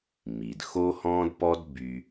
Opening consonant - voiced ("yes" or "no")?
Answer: yes